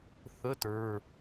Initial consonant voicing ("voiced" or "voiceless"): voiceless